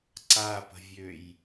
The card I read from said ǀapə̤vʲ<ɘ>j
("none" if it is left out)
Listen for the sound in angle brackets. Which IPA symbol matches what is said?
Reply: ø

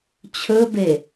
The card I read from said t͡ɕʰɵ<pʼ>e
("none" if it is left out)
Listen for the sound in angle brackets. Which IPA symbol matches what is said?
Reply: b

